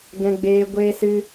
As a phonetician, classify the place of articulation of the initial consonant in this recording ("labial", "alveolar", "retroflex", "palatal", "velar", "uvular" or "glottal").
velar